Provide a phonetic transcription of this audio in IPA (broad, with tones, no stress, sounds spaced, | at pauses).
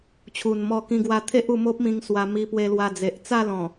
t͡ɕʰ u˨˩ n m ɔ˧ k ĩ˧ ɡ w a˧ t̪ʰ e˦ ʔ u˧ m o˦ p̚ m ĩ˧ ŋ s w a˧ m i˧ p w e˧ l w a˧ d͡z e˨ ʔ t͡s a˥˧ l ɔ̃˨˩